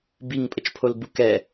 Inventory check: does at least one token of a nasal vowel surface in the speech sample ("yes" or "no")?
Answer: no